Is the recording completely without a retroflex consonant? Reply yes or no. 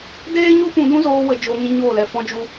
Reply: yes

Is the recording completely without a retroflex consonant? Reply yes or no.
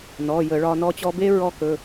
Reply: no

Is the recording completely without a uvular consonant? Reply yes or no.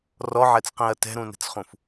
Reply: no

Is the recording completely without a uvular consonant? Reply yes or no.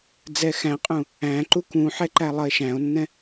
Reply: no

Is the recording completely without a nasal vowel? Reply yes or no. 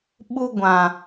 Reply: no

